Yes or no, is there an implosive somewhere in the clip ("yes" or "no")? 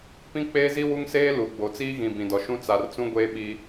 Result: yes